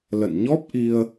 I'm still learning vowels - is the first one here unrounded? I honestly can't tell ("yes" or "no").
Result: yes